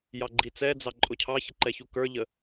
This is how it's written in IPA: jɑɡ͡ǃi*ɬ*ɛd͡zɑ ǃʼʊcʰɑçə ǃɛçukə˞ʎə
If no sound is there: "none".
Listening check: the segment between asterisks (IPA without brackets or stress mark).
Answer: t͡s